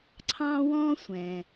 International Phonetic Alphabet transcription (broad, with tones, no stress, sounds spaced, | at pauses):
ǀʰ ɑ̃˥ w ɔ̃˥ sʷ ɛ̃˩